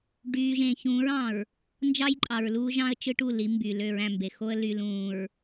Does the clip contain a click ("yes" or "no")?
yes